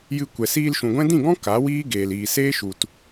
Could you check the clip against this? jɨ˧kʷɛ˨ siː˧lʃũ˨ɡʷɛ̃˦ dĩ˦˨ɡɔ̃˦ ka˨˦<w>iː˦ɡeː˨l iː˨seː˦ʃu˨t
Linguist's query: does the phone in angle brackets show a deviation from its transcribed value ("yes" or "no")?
no